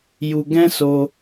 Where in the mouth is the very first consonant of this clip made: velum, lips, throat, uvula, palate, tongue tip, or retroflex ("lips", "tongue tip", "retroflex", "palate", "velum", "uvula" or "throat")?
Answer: palate